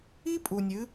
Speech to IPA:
i˥ pʼu˧nʲɨ˧˥

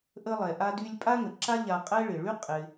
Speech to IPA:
ʔə˧lˠɛ˩ʔa˧dy˧lʲ pʼa˥ŋə˩ǁa˥ ʎa˧qʼɛ˥ ɭɪ˩ɭy˥ qʼɪ˩

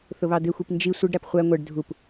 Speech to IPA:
θʊβɑd̪ɪxʷip nd͡ʒi sʷiɖɾæp χʷæ ŋʷɛɖ dʱup

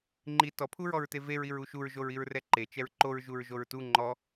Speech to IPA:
ŋ͡ǃi tɔpʰuɹɔɹte veɹiɹu ʃuɹʒoɹiɹrɛ ǃet͡ʃɛɹ ǃoɹ ʒuɹʒoɹtu ŋ͡ǃɔ

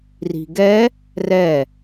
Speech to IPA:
ri̤ɡɛ | rɛ

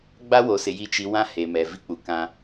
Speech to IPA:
ɡ͡ba˦wo˨sɪ˨ ji˦˨t͡ʃi˦ wã˦he˨mɛ˨ vi˦k͡pu˨ kã˦

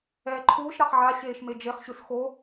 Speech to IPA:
ɛːǃʰuːʃ ɾaχʕa ɕeːʃmed͡ʒeχɕɯs xo

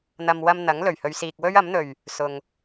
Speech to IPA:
n̪ɐ˨m wɐ˧m n̪ɐ˨˥ŋlɵ˨˩ɥhɵ˨˧ɥ siː˨k̚wɵ˥ɥɐ˨˥mn̪ɵ˨˩ɥ | sʊ˨ŋ

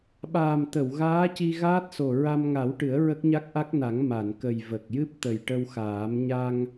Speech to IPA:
ɓaː˨˩mt̪ə˨˩˨wɣaː˧˥ci˧ ɣaː˦˥t̚so˨˩ ɹa˧mŋa˨˩˦wʈɨ˨˩˦ə̯ ɹə˦˥k̚ɲa˦˥k̚ʔa˦˥k̚na˨˩˦ŋ ma˨˩˨nkə˨˩j və˨˩k̚jɨ˦˥p̚ t̪ə˨˩jʈə˧wxaː˨˩˦m ɲa˧ŋ

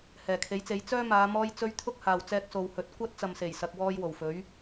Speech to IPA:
hɛː˨˩kʰe˨˥jt͡se˨˥j t͡sœː˥maː˨˧ mɔː˥jt͡sɵ˥ɥ t̪ʰʊ˥k̚haː˨w t͡sɛː˧k̚so˨whɵ˨˥t̚ kʷɐ˥t̚ t͡sɐ˨mse˨˩jsɐ˨k̚ wɔː˧j wo˨˩wfɵ˨˥ɥ

